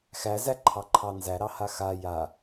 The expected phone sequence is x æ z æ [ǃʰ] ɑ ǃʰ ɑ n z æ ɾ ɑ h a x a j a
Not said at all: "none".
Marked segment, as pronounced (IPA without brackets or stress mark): ǃʰ